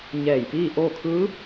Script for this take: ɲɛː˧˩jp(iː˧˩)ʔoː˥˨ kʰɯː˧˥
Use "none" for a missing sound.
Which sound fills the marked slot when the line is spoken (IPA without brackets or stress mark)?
iː˥˨